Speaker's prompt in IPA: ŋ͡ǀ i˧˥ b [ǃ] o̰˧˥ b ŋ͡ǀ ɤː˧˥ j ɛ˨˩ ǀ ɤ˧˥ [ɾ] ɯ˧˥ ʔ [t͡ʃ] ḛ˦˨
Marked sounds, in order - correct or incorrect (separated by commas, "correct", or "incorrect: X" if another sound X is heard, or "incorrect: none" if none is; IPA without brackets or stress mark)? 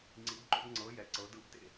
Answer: correct, incorrect: d, incorrect: t